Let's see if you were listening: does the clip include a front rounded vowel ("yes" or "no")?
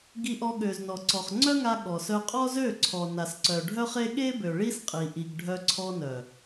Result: yes